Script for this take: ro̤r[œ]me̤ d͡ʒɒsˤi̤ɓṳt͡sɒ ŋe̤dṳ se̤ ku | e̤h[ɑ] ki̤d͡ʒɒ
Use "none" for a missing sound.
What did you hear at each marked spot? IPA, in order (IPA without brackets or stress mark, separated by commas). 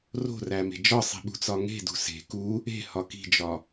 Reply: æ, ɒ